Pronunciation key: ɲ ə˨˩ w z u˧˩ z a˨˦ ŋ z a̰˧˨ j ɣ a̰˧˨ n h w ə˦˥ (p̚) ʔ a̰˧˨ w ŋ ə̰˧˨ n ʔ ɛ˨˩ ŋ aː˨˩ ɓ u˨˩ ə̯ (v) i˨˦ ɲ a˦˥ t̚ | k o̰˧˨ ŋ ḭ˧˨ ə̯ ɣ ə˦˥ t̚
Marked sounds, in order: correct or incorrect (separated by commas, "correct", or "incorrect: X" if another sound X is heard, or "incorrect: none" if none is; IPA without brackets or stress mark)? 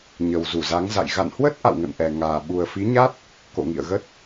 incorrect: t̚, incorrect: f